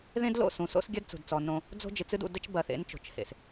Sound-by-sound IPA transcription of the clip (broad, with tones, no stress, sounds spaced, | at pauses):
ð ẽ˦ d l o̰˦˨ s ũ˨ s o̰˦ s ɡʲ ɐ˦ d t͡s ṳ˨ d t͡s ɔ˨ n õ˦ | d͡z o̤˦ d͡ʒ ɨ˨ t͡s ɨ˦ d ṵ˨ d ɘ˦ t͡ʃ b ɐ˨ θ ḛ˨˦ n t͡ʃ o̤˨ t͡ʃ h ḛ˨ s